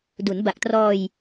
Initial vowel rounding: rounded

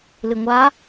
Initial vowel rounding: unrounded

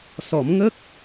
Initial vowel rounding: rounded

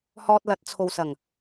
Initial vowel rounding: rounded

